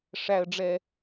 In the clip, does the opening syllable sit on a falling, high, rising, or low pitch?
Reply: low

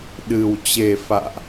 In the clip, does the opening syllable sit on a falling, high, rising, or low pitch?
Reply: low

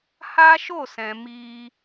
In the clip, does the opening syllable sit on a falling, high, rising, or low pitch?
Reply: high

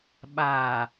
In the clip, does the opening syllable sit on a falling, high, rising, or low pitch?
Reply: low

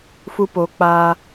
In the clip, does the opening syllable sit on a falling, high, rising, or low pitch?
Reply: high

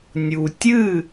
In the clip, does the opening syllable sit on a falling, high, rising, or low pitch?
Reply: low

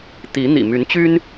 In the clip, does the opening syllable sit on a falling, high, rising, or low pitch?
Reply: rising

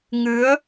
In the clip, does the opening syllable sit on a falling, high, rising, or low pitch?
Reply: rising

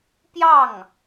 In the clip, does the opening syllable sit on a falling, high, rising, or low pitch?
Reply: falling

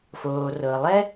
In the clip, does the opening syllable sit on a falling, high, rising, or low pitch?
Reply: low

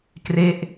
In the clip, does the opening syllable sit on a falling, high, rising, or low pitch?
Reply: falling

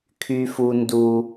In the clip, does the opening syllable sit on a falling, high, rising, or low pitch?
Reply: high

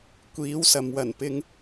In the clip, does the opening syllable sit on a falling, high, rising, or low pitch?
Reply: rising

